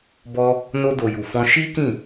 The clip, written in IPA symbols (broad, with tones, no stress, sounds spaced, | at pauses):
b ɔ˧ | n o˧ d o˨ j u˨ f ɔ̃˧ ʃ i˦ k ĩ˦˨